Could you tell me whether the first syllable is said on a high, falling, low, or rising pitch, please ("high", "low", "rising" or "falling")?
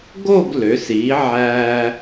falling